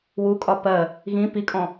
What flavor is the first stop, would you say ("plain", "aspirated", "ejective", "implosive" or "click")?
ejective